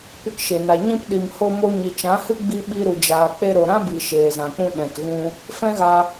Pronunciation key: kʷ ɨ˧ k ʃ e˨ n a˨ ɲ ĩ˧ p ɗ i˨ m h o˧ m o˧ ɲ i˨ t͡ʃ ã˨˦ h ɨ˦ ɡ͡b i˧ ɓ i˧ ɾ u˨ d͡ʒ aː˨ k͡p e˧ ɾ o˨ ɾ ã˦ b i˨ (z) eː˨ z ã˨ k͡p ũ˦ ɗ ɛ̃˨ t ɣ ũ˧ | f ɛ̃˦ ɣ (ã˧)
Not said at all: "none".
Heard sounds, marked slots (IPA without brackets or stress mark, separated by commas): ʃ, a˧